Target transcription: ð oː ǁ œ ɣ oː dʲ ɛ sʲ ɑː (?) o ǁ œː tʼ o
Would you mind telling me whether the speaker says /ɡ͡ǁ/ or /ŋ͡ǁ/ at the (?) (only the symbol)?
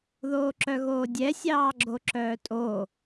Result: ɡ͡ǁ